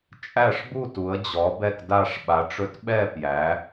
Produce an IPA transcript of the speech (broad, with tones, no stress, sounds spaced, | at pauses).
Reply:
t͡ʃʼ æ˥˧ ʂ b u˥˧ t u˨˦ ə̯ d͡ʑ ɔ˨˦ b ɛ˥˧ k d a˥˧ ʂ ɓ a˨˦ ʈ͡ʂ ɵ˦˥ t ɓ ɛ˥˧ p j æ˨˦